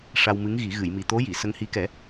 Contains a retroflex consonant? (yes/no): yes